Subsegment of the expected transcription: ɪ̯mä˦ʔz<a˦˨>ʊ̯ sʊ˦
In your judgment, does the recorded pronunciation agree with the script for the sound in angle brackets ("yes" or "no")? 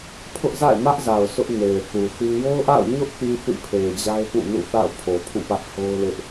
no